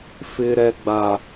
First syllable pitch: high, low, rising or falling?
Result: high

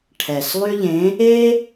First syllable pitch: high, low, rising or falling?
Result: low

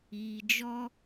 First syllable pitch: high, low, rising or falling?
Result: low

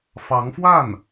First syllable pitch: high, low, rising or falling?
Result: rising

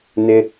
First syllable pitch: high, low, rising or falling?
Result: low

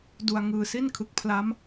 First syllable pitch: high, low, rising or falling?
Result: low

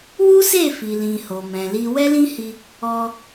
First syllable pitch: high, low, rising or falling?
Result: high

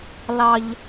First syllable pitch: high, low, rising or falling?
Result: high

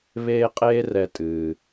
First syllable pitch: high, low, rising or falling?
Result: high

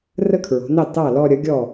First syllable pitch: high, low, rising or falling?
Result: falling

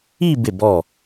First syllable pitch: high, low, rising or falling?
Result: falling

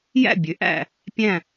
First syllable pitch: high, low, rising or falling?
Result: falling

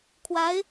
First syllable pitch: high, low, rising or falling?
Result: rising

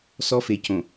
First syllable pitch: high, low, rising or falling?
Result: high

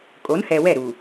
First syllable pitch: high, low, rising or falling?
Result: rising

